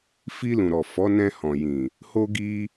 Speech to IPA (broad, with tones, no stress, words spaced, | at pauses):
fi˧lũ˨ɾɔ˨ fɔ˨˦nɛ̃˧hɔ̃˨jĩ˨ | ho˦ɡi˦